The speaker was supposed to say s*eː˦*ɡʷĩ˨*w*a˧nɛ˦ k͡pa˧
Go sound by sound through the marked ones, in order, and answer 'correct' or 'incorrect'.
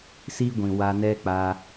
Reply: incorrect, correct

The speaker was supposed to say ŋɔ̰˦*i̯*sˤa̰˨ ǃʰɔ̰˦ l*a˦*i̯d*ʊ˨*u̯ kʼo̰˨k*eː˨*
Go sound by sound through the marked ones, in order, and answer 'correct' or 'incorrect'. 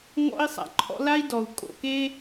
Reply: correct, correct, incorrect, incorrect

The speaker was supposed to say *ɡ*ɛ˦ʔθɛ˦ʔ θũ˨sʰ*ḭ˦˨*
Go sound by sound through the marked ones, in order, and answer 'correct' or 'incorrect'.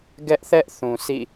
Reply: correct, correct

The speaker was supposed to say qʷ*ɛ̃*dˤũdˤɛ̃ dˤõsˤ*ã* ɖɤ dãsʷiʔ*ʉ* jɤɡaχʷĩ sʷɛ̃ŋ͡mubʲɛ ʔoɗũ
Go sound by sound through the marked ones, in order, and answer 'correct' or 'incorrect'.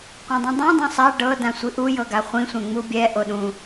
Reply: correct, incorrect, incorrect

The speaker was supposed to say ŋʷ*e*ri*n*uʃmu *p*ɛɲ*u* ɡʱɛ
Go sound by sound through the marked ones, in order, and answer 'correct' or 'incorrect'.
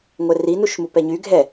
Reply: incorrect, correct, correct, incorrect

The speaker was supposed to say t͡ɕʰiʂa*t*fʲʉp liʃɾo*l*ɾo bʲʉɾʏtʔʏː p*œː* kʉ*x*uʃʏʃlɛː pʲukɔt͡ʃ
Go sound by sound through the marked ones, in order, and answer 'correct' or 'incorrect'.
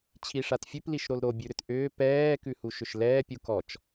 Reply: correct, correct, incorrect, incorrect

